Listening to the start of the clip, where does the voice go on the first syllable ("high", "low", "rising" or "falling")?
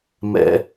high